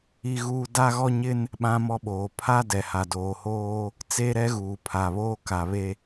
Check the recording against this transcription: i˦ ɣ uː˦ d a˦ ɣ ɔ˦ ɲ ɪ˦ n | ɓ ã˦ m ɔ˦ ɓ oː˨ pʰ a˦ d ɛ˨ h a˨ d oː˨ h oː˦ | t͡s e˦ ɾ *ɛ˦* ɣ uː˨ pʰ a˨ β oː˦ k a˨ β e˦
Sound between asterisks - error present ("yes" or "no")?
no